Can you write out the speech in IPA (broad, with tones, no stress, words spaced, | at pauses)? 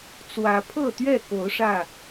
t͡swä˨˦pʰɤ˥˨t̪ɥɛ˥˨ko˨˦ʊ̯ ʂä˥˨